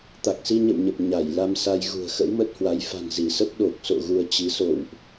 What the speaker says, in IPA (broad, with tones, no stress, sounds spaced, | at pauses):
t̪ a˨˩ k̚ s i˧ ɲ ə̰˧˨ w ɲ ə˨˩ p̚ ɲ a˧˩ j l a˧ m s a˧ j ɣ ṳ˨˩ ə̯ x ə̰˧˥ w m ə˦˥ t̚ h w a˨˦ j f a̤˨˩ n z i˧˩ s ə˦˥ p̚ ɗ o˨˩ k̚ s o̰˧˨ ɣ u˧ ə̯ t͡ɕ i˨˦ s o̰˧˨ w ʔ